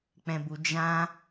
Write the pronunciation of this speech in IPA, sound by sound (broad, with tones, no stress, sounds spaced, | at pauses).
k͡p ɛ̃˧ b u˧ d͡ʒ ã˦